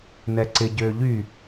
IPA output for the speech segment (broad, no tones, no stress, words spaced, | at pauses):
nɛǀɪ ɟøːʎy